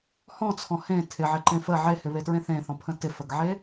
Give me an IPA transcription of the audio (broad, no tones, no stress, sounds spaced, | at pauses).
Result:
h ɔ̃ t͡sʰ ɔ̃ h ẽ tʰ ɪ ʕ ɪ ǃ ẽ f ə ʕ e h ɪ β e t ɹ ẽ θ ẽ θ ɔ̃ pʰ ə̃ t ɪ f ə ɡ ʕ e